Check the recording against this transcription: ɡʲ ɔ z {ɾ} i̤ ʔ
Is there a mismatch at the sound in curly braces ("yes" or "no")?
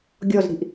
no